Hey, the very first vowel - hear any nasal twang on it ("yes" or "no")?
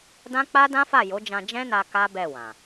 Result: yes